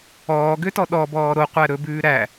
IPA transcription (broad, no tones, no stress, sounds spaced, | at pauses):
ɔː ɡ ø t ɔ ɗ ɔ b ɔː ɾ o qʷ æ ɾ ɵ b ʉː ɾ æ